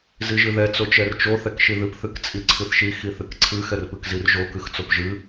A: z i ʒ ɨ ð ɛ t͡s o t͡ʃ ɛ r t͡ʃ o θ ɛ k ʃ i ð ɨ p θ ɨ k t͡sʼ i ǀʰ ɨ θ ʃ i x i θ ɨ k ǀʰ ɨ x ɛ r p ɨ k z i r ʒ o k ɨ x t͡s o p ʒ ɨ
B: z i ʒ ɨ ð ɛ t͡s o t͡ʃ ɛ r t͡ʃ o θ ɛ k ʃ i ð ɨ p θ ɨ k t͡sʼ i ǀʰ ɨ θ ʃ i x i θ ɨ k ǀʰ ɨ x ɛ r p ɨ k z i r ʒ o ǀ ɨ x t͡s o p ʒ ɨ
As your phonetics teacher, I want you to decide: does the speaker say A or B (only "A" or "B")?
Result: A